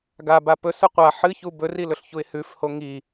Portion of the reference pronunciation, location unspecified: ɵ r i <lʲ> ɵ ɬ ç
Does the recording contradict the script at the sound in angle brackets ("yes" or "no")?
yes